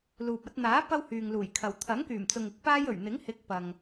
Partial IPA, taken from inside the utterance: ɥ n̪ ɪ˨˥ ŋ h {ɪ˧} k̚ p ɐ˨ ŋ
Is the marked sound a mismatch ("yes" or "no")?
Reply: yes